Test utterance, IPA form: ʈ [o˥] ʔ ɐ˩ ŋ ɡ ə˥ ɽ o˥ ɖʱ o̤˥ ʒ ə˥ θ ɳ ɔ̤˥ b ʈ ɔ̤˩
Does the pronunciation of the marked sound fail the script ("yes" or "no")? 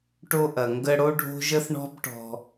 no